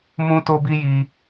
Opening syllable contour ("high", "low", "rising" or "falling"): high